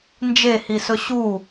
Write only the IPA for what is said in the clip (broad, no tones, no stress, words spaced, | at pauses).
nd͡ʒehisɵ ɕu